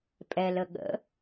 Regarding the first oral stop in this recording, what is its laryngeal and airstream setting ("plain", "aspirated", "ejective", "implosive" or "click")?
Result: ejective